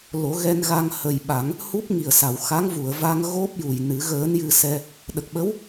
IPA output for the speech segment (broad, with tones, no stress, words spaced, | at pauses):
lo˨˩˦ɣɛ˧n ɣa˧ŋhə˨˩jɓa˨˩˦ŋ | hu˦˥p̚ŋi˨˩ə̯sa˨˩˨w xa˧˥ŋvu˨˩˨ə̯va˧ŋ ɣo˦˥p̚ju˨˩j nɨ˨˩˦ ɣəː˧˥njɨ˧sɛ˧ | ɗə˨˩k̚ɓə˧˥w